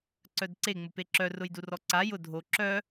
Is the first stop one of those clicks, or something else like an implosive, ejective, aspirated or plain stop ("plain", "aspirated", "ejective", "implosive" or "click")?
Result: click